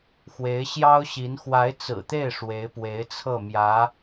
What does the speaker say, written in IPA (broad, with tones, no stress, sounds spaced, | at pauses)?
x w e˧˥ ɪ̯ ɕ j ɑ˥ ʊ̯ ɕ i˧˥ n x w a˧˥ ɪ̯ t͡s ɹ̩˨˩ t̪ e˥˩ ɪ̯ ʂ w e˧˥ ɪ̯ p w e˧˥ ɪ̯ t͡sʰ ɤ˥˩ m j ä˧˥